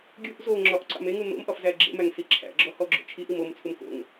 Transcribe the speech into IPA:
ɡʲ u ʔ z o ŋ͡ǁ ɒ ʔ ǀ ɑ̰ m e ŋ u n o̰ m ʔ ɒ f z æ ɡ͡ǁ ḛ m æ ŋ s i ǁʰ æ̰ ɡ͡ǁ ɔ h ɔ ɡ͡ǁ o̰ t͡ʃʰ i ʔ i m o m t͡sʰ u m k o̰ ŋ

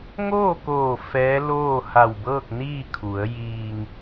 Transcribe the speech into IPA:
ŋ oː˥˨ k oː˧˩ f ɛː˧˥ l oː˥˨ h a˧˩ w b ɤː˥˨ k̚ n iː˥˨ kʰ u˩˧ ə̯ j iː˧ ŋ

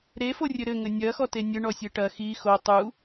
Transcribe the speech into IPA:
ɾ e f o rʲ ɘ ɾ ɘ ŋ ɘ nʲ ɐ x ɔ t e nʲ ɘ ɳ ɔ sʲ e ʈ ɐ x i x o tˤ u

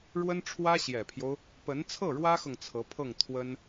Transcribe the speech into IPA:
ɻ w ə˥ n ʈ͡ʂʰ w ä˥ ɕ j ɛ˨˩ pʰ j o˦ ʊ̯ | p ə˧˥ n t͡sʰ ɤ˥˩ ɻ w ä˥ x ɤ˨ ŋ t͡sʰ ɤ˧˥ pʰ ɤ˥˩ ŋ t̪ʰ w ə˥ n

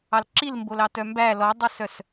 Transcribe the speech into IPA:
ɑ l ǁ i l m b o l ɑ t œ m b æ l ɔ dˤ u s œ s

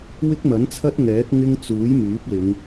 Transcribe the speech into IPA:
w ɪ˥ k̚ m ɐ˨˥ n t͡sʰ ɐ˥ t̚ ŋ ɛː˨˥ k̚ ŋ ɪ˥ ŋ t͡s uː˨˥ j m yː˨˥ p̚ l ɪ˨˧ ŋ

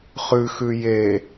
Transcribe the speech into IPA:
χ ʉ x ʉ j e

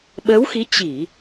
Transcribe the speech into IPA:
ɓ əː˨˦ w x i˨˦ t͡ɕ i˧˩˨

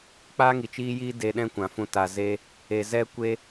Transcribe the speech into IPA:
k͡p aː˦ ŋ i˨ t͡ʃ iː˦ j iː˦ d e˧ ɗ ɛ̃˦ kʷ ã˨ f ũ˧ t a˨ z e˦ | e˨ z ɛ˧ kʷ e˧

